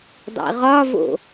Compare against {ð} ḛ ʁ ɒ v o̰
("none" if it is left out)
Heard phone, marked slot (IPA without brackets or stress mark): dˤ